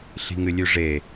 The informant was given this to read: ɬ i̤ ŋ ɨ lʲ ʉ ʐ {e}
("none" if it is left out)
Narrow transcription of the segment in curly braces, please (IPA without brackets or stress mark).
e